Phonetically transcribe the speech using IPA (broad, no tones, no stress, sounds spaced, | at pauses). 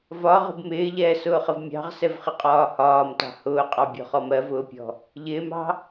v ɒ ʁ ə̤ b m ɪː ʎ ɛː s ʊː χ ə v mʲ ɑ̤ ʁ s ɛ v χ ɪ qʼ ɒː h ɒː m t ɑ̤ h ʊː qʼ ɑ bʲ ɔ̤ χ ɔ m ɜ v ʊː pʲ ɔ̤ | ʎ ɪː m ɑ̤